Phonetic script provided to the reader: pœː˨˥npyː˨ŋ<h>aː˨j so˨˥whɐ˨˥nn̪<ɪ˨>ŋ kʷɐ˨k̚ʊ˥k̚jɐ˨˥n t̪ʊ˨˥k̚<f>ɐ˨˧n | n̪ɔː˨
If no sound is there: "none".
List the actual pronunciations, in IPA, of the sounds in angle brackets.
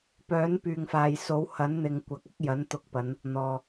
f, ɪ˨, p

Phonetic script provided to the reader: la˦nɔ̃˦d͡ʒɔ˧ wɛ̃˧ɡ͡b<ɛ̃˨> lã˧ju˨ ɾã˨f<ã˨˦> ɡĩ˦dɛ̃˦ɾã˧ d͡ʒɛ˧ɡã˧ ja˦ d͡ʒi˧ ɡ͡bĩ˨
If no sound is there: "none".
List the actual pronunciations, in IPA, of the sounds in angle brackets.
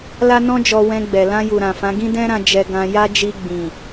ɛ˨, ã˨˦

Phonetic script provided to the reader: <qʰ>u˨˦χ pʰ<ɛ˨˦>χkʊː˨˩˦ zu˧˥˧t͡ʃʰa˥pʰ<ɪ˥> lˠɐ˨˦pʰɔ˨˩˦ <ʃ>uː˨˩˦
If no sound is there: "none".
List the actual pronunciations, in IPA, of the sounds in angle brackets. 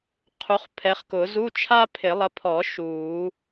qʰ, ɛ˨˦, ɪ˨˩˦, ʃ

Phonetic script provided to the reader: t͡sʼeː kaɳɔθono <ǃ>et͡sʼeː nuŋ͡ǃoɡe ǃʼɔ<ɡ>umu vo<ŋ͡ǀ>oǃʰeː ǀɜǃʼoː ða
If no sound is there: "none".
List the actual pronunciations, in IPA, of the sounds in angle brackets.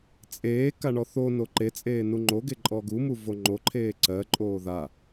ǃ, ɡ, ŋ͡ǃ

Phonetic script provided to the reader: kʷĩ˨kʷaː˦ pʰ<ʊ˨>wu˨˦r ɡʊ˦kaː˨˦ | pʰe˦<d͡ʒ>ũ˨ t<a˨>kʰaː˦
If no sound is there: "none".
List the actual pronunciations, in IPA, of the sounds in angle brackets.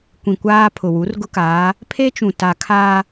ʊ˨, t͡ʃ, a˨

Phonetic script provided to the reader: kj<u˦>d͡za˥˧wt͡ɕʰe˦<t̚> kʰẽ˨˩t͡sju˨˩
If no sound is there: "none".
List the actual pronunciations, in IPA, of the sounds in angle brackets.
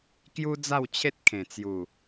u˦, t̚

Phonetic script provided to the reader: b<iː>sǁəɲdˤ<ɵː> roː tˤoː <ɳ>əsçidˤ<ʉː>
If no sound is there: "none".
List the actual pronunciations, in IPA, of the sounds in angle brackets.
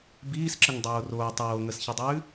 iː, oː, ŋ, ʉː

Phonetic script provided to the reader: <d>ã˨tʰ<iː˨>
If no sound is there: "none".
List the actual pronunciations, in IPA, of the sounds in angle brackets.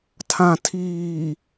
tʰ, iː˨

